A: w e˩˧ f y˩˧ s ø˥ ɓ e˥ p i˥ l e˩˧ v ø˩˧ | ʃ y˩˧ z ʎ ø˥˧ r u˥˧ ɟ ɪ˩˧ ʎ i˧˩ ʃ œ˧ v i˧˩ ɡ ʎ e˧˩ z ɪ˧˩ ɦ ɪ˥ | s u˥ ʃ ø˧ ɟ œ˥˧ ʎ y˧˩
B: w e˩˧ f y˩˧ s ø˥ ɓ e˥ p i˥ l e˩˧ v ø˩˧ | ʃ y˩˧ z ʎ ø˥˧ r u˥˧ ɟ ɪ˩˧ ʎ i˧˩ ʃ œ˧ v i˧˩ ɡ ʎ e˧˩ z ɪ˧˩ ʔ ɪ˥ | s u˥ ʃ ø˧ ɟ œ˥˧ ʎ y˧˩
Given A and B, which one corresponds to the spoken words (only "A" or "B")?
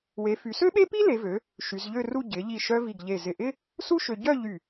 B